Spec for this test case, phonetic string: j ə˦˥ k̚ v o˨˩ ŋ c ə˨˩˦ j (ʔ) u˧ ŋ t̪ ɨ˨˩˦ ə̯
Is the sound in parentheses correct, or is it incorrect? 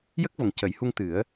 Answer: incorrect